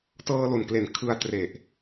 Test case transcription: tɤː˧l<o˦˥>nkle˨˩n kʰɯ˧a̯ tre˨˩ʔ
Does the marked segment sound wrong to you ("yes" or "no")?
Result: yes